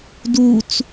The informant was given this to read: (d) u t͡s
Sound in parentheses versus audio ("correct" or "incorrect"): correct